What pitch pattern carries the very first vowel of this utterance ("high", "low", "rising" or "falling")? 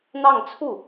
falling